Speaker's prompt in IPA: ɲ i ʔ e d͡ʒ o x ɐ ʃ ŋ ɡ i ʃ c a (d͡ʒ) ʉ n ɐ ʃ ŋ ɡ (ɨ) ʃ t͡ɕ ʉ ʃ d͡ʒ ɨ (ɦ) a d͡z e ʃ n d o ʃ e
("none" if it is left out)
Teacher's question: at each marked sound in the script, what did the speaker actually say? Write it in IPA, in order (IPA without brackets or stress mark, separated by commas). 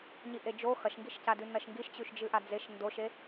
d, i, ʔ